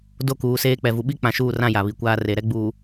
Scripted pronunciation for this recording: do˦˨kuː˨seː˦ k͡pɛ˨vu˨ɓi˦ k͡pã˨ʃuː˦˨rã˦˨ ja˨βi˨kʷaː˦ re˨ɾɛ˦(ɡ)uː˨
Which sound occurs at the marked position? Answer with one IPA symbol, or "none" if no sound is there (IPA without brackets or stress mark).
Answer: ɡ͡b